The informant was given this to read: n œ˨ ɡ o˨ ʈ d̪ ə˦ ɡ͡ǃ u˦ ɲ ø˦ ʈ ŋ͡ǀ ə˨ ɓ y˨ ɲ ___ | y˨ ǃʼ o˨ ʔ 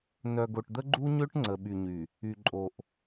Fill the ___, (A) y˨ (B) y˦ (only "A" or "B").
A